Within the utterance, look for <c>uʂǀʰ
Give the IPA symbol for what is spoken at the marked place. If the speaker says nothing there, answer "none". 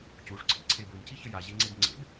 c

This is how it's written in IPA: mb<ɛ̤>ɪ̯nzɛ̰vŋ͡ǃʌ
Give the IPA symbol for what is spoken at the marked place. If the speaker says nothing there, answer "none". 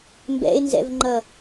ɛ̰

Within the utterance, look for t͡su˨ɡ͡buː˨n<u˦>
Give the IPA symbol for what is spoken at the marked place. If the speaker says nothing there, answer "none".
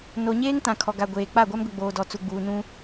ũ˦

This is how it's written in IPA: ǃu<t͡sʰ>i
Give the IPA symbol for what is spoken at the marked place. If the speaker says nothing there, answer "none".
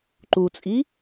t͡sʼ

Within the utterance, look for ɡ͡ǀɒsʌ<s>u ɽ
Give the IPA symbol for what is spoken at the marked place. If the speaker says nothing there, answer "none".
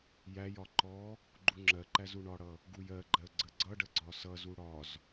z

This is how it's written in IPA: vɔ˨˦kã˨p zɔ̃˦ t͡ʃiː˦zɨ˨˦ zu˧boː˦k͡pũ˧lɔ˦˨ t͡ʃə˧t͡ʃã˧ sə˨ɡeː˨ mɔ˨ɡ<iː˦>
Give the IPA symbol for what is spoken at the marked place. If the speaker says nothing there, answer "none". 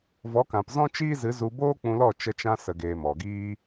iː˦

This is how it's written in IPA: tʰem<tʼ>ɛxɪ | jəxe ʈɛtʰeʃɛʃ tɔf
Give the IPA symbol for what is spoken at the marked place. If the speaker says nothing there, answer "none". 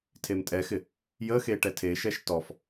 tʼ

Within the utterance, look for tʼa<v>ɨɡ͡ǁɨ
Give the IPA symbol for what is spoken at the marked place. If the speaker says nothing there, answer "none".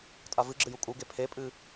v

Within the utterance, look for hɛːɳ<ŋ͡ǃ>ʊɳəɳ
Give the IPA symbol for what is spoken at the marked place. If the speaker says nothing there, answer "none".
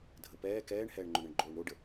ŋ͡ǃ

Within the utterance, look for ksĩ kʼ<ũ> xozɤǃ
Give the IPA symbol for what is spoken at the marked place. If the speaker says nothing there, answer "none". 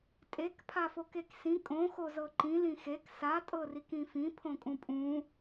õ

